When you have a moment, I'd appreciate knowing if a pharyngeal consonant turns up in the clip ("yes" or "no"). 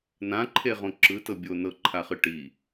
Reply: no